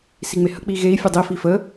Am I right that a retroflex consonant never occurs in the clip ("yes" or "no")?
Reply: yes